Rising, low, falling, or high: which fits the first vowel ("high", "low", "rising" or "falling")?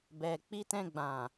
low